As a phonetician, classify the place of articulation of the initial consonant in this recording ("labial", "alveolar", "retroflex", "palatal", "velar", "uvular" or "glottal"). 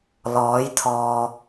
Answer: alveolar